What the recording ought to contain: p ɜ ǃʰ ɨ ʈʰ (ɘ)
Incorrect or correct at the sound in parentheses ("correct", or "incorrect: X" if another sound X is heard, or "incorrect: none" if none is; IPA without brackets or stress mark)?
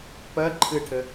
correct